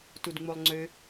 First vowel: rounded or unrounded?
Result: rounded